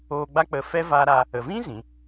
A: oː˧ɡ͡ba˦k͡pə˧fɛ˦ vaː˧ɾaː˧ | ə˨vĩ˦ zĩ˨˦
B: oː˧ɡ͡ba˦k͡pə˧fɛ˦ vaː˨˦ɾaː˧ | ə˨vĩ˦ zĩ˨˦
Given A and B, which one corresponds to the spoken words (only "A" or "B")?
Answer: A